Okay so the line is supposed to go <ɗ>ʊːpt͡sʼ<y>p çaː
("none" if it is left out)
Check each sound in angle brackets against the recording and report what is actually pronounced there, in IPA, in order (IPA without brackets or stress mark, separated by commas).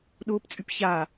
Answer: ɗ, y